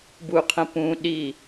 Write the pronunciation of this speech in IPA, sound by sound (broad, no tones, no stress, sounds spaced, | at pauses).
b u qʰ ə̃ p ũ ɗ i